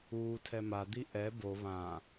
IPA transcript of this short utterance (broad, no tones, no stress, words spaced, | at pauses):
uːtʰɛ mad̪i ʔɛ bo βã